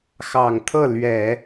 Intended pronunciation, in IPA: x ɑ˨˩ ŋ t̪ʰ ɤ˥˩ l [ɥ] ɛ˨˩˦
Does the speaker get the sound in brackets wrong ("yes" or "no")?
no